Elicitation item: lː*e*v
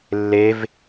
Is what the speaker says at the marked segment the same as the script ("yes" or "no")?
yes